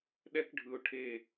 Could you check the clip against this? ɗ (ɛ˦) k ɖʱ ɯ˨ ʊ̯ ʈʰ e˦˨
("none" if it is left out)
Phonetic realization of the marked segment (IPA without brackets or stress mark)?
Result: ɛ˦